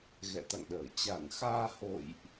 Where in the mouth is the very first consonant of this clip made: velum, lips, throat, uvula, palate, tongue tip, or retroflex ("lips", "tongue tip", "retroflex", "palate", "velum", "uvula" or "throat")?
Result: velum